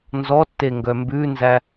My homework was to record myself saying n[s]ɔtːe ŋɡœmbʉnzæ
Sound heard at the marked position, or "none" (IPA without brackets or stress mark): z